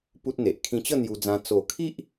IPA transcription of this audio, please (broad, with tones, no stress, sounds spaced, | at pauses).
p u˦ t̚ n̪ e˨ ʔ kʰ ĩ˧ t͡ɕ ə˥˧ n̪ j u˧ d͡z ã˧ t͡s o˨˩ kʰ i˦ ʔ